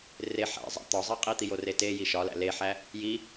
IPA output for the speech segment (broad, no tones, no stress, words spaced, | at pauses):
reħæ̰zˤæ̰ t̪ɒzˤe qʼit̪ijo rete jiʃɒlæ̰ leħæ | ji